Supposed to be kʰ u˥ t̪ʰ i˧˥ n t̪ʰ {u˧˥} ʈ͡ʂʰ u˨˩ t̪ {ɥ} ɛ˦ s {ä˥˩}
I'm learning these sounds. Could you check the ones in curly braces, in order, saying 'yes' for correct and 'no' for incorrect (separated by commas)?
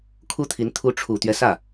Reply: yes, yes, yes